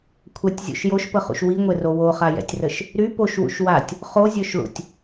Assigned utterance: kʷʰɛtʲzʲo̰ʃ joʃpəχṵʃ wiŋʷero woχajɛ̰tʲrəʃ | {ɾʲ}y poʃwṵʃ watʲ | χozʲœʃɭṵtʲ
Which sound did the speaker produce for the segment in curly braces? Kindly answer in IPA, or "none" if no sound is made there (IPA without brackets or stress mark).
ɾ